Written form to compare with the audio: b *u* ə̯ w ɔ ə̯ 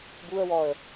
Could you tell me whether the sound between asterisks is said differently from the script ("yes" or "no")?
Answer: no